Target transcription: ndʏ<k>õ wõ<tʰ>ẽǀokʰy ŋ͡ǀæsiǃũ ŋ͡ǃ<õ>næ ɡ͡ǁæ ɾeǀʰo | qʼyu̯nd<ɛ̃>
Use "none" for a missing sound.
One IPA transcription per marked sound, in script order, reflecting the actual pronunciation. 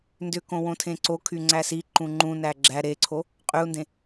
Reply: k, tʰ, ũ, ẽ

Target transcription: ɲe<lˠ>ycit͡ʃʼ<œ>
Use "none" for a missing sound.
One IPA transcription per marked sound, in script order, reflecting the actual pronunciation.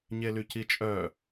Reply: l, œ

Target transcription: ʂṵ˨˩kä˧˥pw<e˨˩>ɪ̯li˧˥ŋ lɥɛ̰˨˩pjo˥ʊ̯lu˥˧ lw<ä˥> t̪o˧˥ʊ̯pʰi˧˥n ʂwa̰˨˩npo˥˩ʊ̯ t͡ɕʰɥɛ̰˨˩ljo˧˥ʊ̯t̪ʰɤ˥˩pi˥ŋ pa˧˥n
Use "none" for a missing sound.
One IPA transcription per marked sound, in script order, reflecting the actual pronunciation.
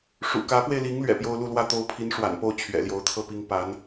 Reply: e˧, ä˥˩

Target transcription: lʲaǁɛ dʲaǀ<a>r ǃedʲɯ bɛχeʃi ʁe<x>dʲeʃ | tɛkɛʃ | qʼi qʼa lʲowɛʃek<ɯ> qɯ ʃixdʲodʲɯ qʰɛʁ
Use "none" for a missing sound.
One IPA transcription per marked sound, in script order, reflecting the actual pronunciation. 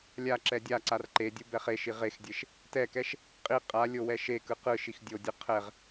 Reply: a, x, ɯ

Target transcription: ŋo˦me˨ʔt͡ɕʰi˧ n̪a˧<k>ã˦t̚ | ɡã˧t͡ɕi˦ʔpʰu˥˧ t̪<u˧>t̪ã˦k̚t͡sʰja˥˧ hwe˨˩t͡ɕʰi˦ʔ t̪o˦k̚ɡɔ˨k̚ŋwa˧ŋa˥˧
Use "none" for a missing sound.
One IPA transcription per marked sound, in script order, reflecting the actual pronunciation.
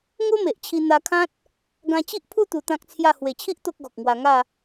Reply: kʰ, u˧

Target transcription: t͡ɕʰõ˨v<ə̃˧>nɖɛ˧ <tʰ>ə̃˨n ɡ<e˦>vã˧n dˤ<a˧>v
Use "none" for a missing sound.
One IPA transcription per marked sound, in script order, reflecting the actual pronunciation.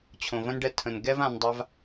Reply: ə̃˧, tʰ, ɛ˦, a˧

